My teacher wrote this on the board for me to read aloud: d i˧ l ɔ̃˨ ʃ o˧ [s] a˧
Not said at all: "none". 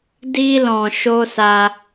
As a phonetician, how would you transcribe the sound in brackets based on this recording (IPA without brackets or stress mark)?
s